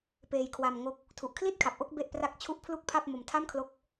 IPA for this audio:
peː˧jkʰwa˧mŋo˦˥k̚ | tʰu˨˩ʔkʰli˥˩t̚kʰa˨˩p̚ʔo˥˩k̚ be˥˩ʔpra˥˩k̚t͡ɕʰu˥˩ʔ pʰlu˥˩k̚pʰa˥˩p̚ mo˧mtʰa˥˩mkʰlo˦˥k̚

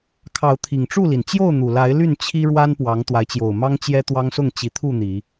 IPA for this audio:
kʰɑ˨˦ʊ̯t̪ʰi˨˩ŋ ʈ͡ʂu˥˨li˩n t͡ɕjo˥˨ʊ̯n̪u˨˩la˨˦ɪ̯ ly˥˨nt͡ɕʰi˦ɻwa˦n pwɑ˨˦ŋt̪wa˨˦ɪ̯t͡ɕjo˨˩ʊ̯ mɑ˦ŋt͡ɕjɛ˦ t̪wɑ˦ŋsʊ˥˨ŋ t͡ɕi˨˦t̪ʰu˥˨ n̪i˨˦

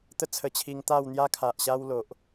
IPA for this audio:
t̪ə˥˧t͡sʰə˧t͡ɕʰi˧ŋ t̪a˥˧wn̪ja˦kʰa˨ʔɕa˦w lo˨ʔ

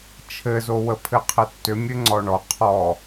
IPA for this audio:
t͡ʃʰɘzowəpʰɘ qʰɘtːʏmʲɘ ŋ͡ǀɔɳɔ qʰɔ

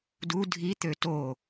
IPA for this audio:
du dʱi t̪øto

